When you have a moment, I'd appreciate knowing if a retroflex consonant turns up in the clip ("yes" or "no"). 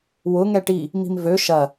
yes